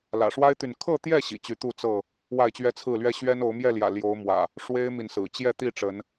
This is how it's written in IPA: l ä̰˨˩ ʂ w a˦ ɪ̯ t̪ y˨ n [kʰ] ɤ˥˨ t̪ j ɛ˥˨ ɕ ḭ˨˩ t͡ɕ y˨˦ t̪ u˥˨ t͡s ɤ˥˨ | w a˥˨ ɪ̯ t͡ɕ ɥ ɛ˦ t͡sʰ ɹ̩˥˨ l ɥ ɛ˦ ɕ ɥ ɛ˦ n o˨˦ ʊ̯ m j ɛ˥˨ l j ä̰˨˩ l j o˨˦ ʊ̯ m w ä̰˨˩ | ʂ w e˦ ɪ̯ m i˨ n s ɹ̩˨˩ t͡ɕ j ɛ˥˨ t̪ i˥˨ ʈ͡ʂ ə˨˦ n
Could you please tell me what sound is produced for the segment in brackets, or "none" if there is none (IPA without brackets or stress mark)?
kʰ